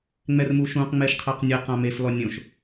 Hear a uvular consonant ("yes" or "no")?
yes